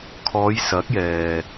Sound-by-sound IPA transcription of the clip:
kʰɔː˨˧jsɐ˨˥k̚jɛː˨

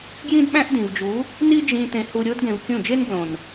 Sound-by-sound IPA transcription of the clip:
ɡjĩ˦dɓæ̃˦ʔdĩ˨vd͡ʒu˨˦ | ni˦d͡ʒĩ˧ t̪ẽ˧hu˧ɾʲo˦d ɡẽ˧vkʲũ˦˨ d͡ʒe˦nblõ˨n

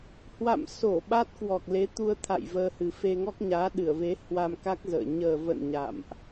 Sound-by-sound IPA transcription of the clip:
hwa̰˧˨mso˧˩ ɓa˦˥t̚kwɔ˨˩k̚ le˨˦t̪u˧ə̯t̪ʰa̰˧˨j vəː˧hɨ˨˩ fe˧ŋɔ˦˥k̚ ɲaː˨˦ɗɨ˧˩ə̯ve˨˦ hwa˧mka˦˥k̚ zə̰ː˧˨ ɲəː˨˩və̰˧˨n ɲa̰˧˨mʔ

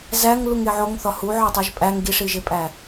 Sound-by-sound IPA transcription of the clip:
zæŋ luŋeʕoŋ θɒhu ʕɒtˤuʒpʼæŋ ɡiʂiʒepʼæ

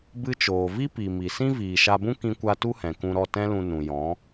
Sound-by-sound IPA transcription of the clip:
bɨ˧ t͡ʃoː˨ vi˦pi˨ mi˨sĩ˦ viː˨ʃa˧bũ˦ kĩ˧kʷa˧ tu˦hɛ̃˨kũ˧ɾɔ˦˨ tɛ̃˦lũ˧ nũ˨jɔ̃˨˦

